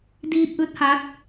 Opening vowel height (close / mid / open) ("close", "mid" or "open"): close